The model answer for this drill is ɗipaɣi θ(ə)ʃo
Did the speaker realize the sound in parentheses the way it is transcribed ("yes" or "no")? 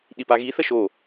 yes